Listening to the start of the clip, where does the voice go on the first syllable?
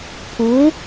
rising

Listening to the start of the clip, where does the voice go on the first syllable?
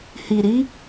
low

